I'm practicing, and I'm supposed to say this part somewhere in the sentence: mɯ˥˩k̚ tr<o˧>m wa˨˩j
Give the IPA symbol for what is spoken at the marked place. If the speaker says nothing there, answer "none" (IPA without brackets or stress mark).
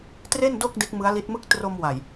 o˧